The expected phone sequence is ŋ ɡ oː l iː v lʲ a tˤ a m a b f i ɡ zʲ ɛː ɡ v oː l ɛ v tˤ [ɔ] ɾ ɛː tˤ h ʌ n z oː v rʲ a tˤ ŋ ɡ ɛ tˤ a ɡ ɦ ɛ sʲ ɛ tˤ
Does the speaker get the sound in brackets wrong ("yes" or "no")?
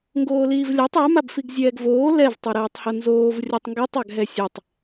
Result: yes